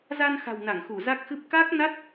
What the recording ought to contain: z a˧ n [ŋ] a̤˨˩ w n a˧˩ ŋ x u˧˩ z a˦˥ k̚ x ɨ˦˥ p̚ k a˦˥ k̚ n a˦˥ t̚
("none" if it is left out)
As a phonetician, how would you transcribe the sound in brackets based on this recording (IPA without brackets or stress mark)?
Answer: x